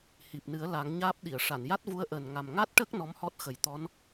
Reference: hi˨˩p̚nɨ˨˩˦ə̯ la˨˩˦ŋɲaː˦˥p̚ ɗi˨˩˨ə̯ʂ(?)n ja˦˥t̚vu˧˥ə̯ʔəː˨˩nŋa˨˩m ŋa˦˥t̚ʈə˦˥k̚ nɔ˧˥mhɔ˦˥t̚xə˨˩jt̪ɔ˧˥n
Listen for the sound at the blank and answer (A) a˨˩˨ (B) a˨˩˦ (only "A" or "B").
A